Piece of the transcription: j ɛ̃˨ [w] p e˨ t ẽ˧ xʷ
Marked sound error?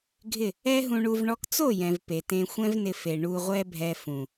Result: yes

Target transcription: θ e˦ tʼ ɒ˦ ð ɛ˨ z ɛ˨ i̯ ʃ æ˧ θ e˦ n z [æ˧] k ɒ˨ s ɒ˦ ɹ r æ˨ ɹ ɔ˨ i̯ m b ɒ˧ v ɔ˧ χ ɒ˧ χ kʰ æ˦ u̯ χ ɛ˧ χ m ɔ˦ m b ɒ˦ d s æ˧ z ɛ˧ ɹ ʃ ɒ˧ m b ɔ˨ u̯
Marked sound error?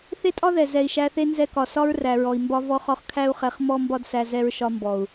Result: yes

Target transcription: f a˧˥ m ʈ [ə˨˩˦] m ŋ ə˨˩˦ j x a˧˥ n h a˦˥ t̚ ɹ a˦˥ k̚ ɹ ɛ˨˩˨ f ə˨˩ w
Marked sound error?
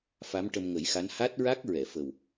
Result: yes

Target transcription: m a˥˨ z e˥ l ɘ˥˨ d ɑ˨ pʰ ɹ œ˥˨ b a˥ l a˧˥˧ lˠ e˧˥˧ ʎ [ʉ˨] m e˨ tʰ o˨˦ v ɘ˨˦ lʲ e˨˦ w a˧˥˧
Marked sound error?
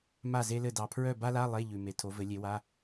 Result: no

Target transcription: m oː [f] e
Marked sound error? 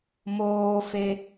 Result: no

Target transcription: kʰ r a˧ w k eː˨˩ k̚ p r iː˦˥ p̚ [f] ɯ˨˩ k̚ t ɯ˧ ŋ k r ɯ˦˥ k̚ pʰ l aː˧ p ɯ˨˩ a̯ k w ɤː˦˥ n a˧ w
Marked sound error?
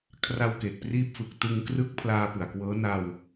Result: no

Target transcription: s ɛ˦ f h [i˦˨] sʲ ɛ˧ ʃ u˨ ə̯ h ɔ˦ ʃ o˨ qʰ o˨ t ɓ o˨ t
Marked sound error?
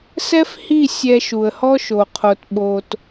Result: no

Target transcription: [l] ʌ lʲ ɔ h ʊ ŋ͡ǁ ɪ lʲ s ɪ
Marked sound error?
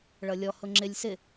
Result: yes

